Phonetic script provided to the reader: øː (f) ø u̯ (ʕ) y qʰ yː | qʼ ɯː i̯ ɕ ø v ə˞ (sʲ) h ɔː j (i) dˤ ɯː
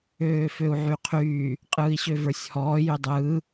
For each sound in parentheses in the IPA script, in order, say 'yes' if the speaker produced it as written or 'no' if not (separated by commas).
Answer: yes, yes, yes, no